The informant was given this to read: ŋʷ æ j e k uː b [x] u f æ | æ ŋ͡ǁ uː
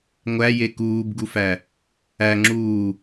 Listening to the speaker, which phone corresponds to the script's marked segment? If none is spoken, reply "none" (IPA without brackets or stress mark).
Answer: ɡ